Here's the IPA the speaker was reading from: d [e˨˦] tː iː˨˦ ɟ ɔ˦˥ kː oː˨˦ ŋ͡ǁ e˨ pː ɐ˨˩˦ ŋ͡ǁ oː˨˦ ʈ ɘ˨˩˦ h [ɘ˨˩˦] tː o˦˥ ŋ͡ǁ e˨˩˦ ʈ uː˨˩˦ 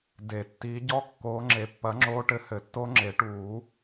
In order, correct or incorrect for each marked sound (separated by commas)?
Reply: incorrect, correct